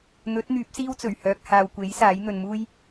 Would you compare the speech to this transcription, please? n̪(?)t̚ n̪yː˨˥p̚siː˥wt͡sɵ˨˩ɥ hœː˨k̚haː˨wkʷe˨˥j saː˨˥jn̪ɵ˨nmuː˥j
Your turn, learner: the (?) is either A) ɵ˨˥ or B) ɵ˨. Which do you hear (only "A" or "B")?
A